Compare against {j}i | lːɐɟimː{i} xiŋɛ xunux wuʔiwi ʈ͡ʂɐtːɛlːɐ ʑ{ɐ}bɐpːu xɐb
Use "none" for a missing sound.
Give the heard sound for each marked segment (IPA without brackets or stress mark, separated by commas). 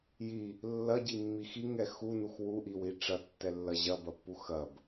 j, i, ɐ